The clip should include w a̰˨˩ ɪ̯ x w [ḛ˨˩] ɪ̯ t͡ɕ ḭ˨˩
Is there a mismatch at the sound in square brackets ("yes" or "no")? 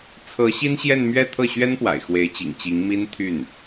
yes